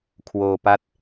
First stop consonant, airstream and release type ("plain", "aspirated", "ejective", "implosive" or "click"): aspirated